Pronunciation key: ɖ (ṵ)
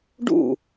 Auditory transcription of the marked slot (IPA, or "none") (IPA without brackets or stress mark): ṵ